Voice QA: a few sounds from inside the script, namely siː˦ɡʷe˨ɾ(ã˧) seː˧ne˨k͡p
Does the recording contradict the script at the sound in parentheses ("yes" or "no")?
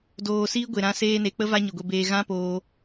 no